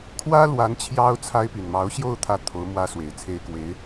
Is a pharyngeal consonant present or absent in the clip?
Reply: absent